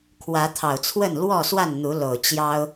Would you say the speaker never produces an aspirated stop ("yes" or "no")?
no